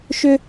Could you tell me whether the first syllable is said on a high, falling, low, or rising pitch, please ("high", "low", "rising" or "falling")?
high